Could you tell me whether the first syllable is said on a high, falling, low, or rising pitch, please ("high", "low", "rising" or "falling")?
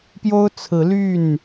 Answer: high